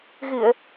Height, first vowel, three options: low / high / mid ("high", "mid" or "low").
high